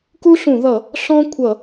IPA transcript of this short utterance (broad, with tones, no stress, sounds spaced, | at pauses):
k u˥ ɬ ũ˧˩˧ ð ʌ˧˩˧ | ɬ ɔ̃˥ kʷʰ ʌ˧˩˧